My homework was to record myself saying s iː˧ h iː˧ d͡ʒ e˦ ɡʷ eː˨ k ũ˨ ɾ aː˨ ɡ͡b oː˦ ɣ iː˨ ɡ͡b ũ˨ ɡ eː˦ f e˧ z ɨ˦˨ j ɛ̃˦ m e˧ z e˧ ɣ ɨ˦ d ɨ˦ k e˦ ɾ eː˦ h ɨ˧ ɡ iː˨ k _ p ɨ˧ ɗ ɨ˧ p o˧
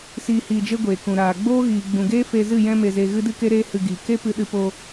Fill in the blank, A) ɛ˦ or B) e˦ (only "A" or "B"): B